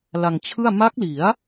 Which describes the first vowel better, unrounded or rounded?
unrounded